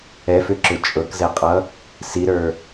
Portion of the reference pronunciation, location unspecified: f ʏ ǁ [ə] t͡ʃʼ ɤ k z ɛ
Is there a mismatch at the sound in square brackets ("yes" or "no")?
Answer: yes